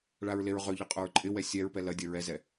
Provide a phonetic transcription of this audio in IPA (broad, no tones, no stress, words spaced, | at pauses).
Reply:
ɭaɹleɹʁøʎɐ qʼʊɹǃʼɪwɛ sʲɛɹpɛ lɐdʲɐ ɹɛzɛ